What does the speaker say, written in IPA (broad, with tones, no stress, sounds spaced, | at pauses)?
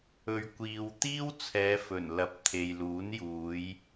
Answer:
ɵ˨ ɥ kʷ iː˨ w t̪ iː˥ w t͡sʰ ɛː˨˧ f ɵ˨˩ n l ɐ˨˥ p̚ t̪ʰ e˨ j l uː˨˥ n j uː˨˧ j